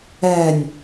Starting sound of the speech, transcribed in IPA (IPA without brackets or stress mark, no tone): ɛ